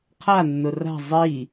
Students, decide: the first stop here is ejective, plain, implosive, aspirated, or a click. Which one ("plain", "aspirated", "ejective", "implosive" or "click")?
aspirated